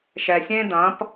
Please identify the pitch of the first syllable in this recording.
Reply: low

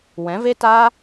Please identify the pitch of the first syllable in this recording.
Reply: rising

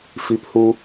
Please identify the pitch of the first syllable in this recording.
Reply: rising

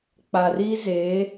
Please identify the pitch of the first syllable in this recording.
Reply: low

